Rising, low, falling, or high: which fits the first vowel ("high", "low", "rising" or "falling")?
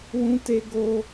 high